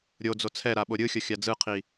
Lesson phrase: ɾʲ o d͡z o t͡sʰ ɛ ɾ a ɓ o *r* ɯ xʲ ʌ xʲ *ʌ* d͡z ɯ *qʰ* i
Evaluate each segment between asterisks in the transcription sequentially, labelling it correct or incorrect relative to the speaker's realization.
incorrect, incorrect, correct

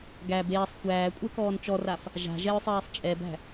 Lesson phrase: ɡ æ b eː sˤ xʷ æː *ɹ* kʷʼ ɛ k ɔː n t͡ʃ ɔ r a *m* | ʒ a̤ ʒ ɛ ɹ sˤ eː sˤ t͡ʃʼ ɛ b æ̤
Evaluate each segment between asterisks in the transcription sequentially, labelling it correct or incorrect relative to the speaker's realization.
incorrect, incorrect

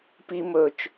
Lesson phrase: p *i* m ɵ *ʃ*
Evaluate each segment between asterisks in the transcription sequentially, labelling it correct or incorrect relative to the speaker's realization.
correct, incorrect

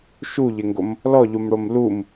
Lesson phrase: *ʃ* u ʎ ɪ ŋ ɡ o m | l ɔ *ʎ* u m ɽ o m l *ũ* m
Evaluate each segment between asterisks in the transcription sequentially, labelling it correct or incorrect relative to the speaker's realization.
correct, correct, incorrect

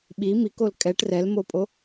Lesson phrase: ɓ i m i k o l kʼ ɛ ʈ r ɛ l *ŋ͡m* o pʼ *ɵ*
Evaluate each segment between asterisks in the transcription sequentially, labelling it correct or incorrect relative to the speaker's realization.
incorrect, incorrect

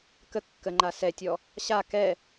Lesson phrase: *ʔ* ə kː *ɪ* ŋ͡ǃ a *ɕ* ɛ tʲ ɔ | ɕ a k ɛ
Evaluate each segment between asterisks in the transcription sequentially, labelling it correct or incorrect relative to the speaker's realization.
incorrect, incorrect, incorrect

